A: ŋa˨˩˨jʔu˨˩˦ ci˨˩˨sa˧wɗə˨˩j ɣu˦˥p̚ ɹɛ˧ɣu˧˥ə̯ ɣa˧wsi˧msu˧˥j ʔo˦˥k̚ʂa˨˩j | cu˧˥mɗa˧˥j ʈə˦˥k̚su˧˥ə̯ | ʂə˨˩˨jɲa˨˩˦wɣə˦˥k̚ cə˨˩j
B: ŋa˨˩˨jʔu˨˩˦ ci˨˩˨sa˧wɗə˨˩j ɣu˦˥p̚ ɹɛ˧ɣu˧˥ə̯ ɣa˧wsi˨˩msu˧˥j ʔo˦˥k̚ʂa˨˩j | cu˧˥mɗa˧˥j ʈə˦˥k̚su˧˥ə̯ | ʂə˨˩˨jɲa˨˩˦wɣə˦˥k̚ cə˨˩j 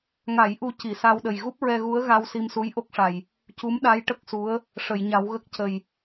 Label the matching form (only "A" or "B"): A